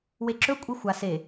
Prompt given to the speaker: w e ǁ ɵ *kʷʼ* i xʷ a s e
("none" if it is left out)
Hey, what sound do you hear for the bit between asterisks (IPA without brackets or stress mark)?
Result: kʷʼ